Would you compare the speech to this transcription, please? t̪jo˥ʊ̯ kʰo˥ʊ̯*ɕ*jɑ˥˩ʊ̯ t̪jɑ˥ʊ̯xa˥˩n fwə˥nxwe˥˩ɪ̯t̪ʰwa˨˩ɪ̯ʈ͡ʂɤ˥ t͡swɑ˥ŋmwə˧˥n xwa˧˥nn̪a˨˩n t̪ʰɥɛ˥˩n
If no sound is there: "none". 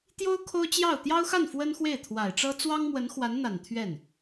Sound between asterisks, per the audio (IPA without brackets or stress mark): t͡ɕ